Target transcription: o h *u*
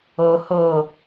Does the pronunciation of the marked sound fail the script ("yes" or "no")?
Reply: yes